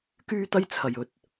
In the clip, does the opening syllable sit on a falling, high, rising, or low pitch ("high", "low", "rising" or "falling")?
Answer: high